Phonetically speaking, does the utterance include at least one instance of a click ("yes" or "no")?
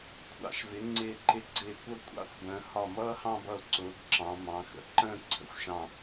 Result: yes